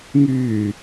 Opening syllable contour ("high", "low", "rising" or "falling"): low